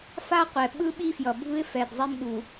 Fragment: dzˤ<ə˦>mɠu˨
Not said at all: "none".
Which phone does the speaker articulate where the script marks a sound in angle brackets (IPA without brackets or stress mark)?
ɛ˦